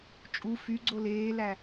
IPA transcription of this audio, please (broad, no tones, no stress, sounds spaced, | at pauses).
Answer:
t͡ʃʼ u f y ɡ͡ǀ o l eː l æ